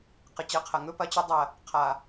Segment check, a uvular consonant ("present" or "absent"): present